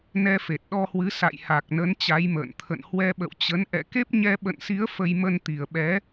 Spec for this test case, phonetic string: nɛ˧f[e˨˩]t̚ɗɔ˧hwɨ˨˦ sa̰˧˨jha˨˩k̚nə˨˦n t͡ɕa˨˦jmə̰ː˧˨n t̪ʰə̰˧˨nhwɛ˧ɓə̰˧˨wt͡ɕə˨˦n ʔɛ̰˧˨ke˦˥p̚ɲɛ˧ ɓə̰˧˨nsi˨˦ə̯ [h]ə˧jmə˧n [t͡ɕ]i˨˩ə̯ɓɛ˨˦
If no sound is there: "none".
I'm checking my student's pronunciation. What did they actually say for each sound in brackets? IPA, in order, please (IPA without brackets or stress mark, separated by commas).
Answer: e˨˩, f, t̪